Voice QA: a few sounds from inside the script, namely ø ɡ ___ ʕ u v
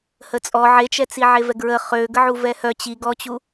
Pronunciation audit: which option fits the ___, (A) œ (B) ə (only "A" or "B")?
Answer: B